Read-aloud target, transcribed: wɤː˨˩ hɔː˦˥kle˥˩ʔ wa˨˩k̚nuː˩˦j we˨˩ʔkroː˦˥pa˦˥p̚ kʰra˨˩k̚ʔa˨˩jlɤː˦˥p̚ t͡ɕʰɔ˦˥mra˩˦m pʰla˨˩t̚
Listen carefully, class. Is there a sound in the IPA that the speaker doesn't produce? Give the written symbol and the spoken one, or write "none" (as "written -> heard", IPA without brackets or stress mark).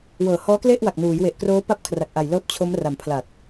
ɔ˦˥ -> o˦˥